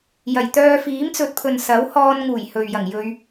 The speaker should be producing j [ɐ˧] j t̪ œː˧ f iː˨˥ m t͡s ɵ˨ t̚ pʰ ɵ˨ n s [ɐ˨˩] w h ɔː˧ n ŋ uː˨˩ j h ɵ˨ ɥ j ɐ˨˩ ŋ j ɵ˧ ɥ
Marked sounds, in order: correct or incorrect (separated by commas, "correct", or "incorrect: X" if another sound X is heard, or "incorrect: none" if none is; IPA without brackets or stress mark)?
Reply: incorrect: ɐ˨˩, incorrect: ɐ˨˥